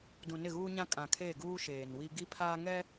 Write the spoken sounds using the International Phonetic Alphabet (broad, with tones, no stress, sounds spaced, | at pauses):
d ũ˨ n ɪ˦˨ ɣ uː˦ ɲ ã˦ kʼ ã˨ kʰ eː˦˨ ɡ uː˦ ʃ eː˨ n w i˦ ɡ i˦ pʰ aː˦ ŋ ɛ˦